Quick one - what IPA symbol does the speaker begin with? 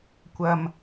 kʷ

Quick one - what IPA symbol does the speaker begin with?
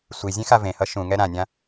sʷ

